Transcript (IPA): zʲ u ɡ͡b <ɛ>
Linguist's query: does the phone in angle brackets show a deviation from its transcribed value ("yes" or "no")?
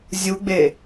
yes